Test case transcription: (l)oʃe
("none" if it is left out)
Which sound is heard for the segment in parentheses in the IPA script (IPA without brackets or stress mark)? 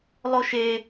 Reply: lˠ